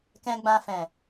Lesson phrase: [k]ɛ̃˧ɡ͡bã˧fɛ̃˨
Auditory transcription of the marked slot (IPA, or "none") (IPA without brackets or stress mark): k